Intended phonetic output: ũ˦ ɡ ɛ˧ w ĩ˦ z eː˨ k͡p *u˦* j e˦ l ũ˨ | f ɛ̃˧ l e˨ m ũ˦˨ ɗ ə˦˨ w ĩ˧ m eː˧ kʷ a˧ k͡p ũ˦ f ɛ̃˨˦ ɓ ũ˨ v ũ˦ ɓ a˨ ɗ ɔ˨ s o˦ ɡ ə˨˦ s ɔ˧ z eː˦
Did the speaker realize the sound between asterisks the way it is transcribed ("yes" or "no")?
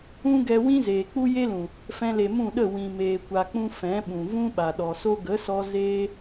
yes